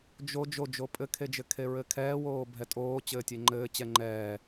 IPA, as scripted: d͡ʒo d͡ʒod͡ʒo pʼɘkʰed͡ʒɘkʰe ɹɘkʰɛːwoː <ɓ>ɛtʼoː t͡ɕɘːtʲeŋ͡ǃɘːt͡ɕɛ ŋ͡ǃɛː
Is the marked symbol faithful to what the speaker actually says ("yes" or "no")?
no